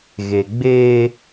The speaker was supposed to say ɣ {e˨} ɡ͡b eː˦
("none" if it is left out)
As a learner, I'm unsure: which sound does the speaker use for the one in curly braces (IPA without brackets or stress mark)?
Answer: e˨